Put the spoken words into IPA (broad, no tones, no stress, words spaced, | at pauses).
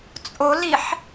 t͡sʼoliħ